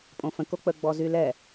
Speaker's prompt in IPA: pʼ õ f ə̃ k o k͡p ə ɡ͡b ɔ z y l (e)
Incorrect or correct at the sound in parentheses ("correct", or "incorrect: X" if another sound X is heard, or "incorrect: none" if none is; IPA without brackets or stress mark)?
incorrect: ɛ